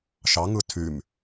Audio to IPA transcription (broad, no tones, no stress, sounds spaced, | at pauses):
ʃ ɑ ŋ ɯ tʰ y m